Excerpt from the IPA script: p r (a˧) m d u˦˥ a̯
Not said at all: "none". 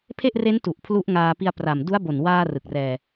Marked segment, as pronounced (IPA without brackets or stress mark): a˨˩